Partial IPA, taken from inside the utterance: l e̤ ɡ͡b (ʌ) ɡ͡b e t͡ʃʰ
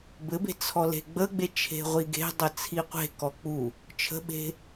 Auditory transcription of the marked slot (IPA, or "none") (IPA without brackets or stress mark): ə